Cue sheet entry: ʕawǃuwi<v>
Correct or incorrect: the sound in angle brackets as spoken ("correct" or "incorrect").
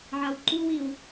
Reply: incorrect